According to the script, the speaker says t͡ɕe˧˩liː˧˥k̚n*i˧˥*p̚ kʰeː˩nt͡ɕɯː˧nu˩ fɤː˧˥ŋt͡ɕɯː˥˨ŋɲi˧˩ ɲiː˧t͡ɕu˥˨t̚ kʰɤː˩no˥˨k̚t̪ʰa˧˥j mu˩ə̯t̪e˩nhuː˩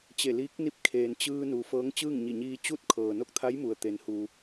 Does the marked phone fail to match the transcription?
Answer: no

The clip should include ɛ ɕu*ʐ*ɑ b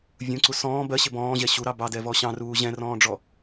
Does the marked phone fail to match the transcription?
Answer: yes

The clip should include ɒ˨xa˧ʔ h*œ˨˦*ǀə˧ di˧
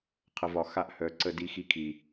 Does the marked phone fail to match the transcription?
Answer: no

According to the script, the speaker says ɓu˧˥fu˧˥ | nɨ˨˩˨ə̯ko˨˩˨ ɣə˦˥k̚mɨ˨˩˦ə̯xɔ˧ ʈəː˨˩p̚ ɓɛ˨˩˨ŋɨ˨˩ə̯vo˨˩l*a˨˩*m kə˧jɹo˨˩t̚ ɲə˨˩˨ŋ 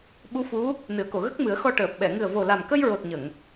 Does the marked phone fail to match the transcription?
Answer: no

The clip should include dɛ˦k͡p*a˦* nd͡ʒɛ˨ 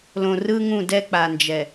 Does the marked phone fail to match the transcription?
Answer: yes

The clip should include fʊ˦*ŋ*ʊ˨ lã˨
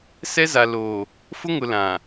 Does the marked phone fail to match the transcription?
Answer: no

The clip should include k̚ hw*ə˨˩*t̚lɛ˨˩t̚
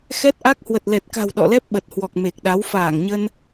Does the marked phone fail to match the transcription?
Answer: no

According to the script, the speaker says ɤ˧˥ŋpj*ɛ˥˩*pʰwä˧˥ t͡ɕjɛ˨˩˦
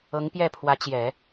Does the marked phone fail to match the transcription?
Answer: no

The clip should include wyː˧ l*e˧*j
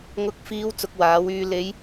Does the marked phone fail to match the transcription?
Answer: yes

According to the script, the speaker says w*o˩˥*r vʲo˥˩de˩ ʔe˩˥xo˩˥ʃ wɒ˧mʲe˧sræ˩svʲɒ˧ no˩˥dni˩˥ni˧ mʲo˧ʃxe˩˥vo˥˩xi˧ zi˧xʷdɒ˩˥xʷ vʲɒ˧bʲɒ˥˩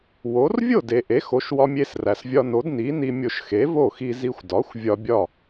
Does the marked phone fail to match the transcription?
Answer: no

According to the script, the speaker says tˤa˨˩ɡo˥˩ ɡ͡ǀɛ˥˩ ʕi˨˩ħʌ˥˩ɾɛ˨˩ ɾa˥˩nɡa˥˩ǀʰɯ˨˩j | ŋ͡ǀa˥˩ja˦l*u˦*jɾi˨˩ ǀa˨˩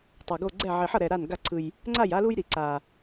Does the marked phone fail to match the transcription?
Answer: no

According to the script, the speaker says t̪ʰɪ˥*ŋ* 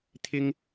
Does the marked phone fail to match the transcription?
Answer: no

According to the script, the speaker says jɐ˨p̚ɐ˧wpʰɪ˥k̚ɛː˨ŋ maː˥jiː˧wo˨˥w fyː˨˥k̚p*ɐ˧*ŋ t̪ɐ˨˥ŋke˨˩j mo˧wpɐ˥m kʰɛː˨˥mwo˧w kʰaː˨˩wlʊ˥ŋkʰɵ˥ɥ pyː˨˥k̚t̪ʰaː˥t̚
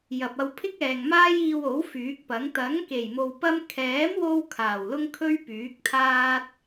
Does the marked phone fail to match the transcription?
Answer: yes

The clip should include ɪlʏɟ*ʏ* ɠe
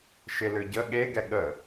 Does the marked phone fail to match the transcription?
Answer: yes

